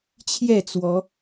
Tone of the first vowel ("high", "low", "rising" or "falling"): falling